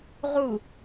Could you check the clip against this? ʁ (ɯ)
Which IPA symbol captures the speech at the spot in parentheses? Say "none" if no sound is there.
u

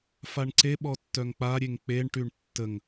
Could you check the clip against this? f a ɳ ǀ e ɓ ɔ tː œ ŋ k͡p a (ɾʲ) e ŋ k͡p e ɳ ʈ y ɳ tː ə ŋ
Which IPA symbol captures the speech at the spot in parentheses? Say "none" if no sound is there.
ɾʲ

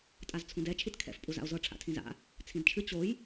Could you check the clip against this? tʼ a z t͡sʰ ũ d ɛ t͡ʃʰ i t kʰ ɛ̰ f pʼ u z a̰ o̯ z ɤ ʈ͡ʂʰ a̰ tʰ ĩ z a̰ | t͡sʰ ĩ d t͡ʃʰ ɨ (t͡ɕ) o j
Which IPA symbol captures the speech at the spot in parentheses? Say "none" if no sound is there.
t͡ɕ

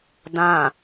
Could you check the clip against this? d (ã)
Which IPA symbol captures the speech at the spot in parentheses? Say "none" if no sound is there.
ã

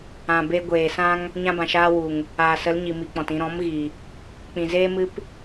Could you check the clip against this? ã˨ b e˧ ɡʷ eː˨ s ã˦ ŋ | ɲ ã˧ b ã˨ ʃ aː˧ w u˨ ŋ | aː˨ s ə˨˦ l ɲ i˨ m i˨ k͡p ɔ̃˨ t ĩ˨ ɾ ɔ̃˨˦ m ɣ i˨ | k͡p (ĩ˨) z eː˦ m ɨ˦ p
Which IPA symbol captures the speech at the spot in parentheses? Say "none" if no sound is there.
ĩ˨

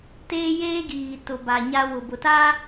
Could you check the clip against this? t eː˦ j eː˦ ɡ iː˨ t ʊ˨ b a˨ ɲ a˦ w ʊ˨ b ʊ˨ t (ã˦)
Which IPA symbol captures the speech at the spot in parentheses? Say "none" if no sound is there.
a˦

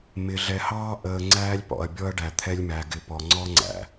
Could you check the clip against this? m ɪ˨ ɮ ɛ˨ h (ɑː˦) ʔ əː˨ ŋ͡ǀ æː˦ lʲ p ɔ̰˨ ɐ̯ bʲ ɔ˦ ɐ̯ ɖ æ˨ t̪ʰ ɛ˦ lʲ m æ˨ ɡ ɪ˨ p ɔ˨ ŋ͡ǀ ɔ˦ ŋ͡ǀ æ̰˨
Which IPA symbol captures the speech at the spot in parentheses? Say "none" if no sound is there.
ɑː˦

